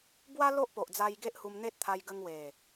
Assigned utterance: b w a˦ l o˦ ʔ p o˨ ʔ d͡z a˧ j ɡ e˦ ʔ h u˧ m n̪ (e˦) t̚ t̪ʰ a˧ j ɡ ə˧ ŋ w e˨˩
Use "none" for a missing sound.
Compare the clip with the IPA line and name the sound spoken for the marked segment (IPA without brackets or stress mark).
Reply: e˦